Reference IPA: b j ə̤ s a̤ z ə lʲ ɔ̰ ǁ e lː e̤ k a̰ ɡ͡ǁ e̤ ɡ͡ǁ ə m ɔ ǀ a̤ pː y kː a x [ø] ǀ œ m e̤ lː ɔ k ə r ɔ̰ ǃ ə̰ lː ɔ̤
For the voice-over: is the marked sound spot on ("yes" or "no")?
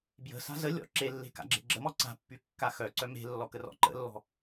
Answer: no